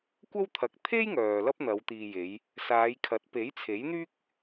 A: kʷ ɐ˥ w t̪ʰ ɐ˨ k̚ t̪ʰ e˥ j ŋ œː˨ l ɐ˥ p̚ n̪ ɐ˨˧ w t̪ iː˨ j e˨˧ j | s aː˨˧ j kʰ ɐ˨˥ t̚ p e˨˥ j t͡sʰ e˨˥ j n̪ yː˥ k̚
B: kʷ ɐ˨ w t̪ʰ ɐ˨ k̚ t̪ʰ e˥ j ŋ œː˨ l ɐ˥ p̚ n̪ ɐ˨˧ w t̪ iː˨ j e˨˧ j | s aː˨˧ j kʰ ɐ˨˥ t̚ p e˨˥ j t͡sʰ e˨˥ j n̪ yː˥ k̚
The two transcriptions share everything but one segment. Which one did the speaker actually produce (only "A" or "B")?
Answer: A